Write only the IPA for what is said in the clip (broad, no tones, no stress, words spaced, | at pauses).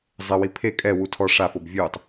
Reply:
zˤɪwi pʰe kʼɛwu tʰɔ ʂafob vʲutˤ